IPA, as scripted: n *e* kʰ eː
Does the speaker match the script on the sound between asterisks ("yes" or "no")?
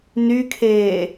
no